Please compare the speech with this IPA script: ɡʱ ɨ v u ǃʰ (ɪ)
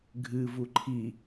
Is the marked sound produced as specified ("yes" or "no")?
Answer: no